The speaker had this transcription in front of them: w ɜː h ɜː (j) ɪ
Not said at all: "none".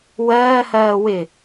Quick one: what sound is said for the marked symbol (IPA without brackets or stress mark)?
w